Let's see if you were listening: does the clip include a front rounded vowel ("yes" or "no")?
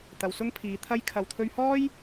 no